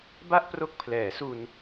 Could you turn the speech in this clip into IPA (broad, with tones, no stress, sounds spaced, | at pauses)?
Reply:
b a˥˩ ʔ p r o˦˥ k̚ pʰ l ɛː˩˦ s u˧ n